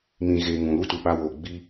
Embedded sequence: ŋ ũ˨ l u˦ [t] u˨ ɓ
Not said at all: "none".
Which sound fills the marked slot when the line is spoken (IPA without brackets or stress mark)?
t